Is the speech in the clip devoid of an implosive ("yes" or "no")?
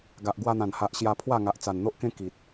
yes